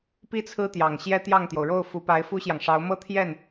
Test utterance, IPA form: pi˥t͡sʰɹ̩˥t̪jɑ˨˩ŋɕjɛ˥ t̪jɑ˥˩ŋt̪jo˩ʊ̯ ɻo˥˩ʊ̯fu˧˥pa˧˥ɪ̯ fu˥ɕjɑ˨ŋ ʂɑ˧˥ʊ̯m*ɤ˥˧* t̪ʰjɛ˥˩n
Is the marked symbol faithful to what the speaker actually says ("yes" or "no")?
yes